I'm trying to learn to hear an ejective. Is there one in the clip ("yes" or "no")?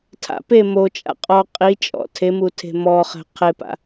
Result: yes